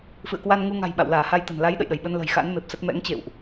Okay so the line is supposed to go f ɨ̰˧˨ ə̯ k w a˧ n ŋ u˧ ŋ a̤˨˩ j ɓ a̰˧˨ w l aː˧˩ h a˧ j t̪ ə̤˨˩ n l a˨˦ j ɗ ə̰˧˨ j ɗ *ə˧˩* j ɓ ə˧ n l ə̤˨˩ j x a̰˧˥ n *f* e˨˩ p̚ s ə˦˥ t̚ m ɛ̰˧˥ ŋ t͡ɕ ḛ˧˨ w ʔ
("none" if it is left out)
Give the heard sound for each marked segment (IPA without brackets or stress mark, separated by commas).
ə˧˩, m